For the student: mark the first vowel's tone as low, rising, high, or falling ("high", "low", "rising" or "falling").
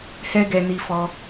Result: high